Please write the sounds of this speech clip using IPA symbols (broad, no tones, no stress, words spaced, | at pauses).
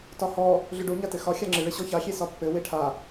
tɒhɔ | ɮʏɖo ɲatɘxɒ xʲaŋ͡ǁɨ ɭɘɕɔça xʲesɒpːɘ weʈʰa